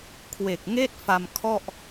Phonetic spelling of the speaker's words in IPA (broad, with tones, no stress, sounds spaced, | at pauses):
kʰ w e˨˩ k̚ ŋ eː˥˩ t̚ f a˧ m kʰ ɔ˥˩ ʔ